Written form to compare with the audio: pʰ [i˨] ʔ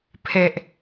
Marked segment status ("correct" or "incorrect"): incorrect